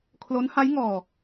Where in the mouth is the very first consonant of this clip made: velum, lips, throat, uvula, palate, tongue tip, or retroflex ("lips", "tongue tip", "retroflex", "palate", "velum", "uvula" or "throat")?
velum